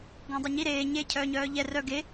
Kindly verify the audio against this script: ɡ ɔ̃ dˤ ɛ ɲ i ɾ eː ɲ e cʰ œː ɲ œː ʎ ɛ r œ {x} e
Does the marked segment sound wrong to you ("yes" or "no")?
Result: yes